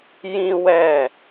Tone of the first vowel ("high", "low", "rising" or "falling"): high